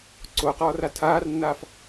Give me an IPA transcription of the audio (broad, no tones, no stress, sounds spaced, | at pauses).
ǀ o q ɔː r a tʰ aː r nː aː f